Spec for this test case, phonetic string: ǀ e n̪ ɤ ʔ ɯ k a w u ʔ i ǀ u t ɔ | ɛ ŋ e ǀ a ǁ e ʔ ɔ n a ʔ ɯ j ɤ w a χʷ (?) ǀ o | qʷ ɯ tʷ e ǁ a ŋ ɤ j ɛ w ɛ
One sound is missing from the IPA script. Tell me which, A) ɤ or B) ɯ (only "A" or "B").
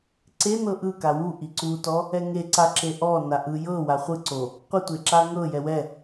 B